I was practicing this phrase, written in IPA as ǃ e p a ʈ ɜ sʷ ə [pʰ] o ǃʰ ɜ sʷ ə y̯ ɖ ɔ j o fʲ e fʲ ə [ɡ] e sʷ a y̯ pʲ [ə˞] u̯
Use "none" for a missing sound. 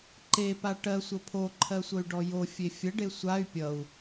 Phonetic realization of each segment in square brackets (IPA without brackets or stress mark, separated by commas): pʰ, ɖ, ʌ